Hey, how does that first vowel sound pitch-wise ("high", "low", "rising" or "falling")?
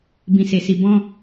low